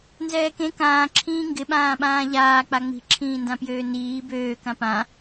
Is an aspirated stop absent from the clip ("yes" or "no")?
no